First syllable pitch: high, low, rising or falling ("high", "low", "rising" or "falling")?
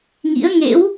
rising